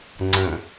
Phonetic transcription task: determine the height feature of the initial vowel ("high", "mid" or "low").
mid